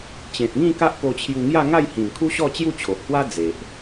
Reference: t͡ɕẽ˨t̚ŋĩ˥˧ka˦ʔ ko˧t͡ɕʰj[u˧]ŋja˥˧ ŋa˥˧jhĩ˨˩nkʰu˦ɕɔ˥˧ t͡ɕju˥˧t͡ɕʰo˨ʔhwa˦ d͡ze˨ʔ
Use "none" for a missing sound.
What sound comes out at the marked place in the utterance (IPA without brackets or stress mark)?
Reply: u˧